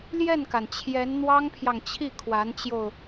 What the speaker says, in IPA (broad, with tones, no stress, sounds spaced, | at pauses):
l j ɛ˥˩ n k a˩ n t͡ɕʰ j ɛ˧˥ n n̪ w ɑ˥ ŋ pʰ j ɑ˨ ŋ t͡ɕʰ i˥˩ kʰ w a˧˥ n t͡ɕ j o˧ ʊ̯